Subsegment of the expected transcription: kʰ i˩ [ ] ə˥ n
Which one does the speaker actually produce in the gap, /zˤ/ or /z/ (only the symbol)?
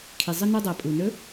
zˤ